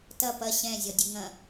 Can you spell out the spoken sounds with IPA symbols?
t ɐ p ɐ ɕ ɛ̃ zʲ ɔ dʲ ʉ ŋ ɐ̃

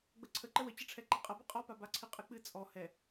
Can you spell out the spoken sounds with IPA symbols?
ɡ͡b ə ǀʰ ə ǃ ə w ə t͡ɕ ə ʈ͡ʂʰ ɛ ǃ ɛ qʼ ɐ b ɨ qʼ ɔ p a b a ǀʰ ɨ qʼ ɨ k͡p ɨ t͡sʼ ɔ h ɛ

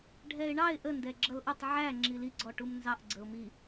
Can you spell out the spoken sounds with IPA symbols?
ɖʱ ɛ ɪ̯ ɳ ɑ ɪ̯ ʔ ə n d ɛ ɡ͡ǁ ʌ l ʔ ʊ tˤ ʕ æ ŋ͡ǁ i l i ɡ͡ǀ ɔ ʈ u m n z ɑ ʔ ɡ͡ǀ ə ʊ̯ m i

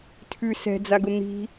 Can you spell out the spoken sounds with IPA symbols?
tʰ ʉ s ɛ̤ d͡z a ɡ ʊ n̪ i̤

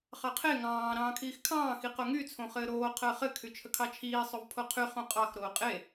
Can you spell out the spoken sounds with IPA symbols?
χ ɑ qʰ e ŋ ɑ̃ː ɾ ɑ̃ː kʰ iː x kʰ ɑ̃ː x i q o ŋ y t͡sʰ õ χ ɘː ɾ oː qʰ əː χ ɘ kʰ y t͡ʃʰ ə kʰ ɑ t͡ʃʰ iː sˤ o v pʰ o qʰ y χ õ qʼ ɑ x ɾ oː qʼ e

